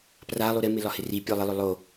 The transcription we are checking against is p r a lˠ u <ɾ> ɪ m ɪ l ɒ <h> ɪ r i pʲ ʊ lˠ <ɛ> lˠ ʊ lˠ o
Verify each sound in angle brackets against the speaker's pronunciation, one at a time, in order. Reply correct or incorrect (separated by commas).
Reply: correct, correct, incorrect